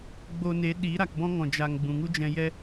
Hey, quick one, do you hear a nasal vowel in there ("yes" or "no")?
yes